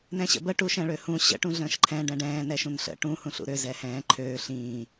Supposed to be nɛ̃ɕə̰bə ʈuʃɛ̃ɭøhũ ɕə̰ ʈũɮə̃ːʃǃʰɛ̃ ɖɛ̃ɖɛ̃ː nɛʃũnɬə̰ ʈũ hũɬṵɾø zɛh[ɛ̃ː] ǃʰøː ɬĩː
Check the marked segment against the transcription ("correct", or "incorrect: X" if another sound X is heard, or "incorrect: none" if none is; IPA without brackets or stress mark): correct